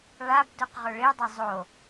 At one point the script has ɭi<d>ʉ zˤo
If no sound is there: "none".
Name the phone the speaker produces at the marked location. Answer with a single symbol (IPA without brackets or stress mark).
dˤ